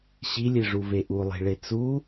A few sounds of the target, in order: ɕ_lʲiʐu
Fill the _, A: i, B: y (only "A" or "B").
A